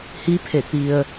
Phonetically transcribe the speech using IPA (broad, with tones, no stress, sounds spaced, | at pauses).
h i˧˥ pʰ e˧˩ t̪ i˧ ə̯